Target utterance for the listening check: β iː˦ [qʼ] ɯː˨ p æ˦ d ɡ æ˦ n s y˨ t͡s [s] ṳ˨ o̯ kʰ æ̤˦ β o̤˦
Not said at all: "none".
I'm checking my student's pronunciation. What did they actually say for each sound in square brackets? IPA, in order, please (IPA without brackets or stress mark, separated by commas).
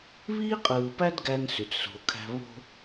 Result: qʼ, s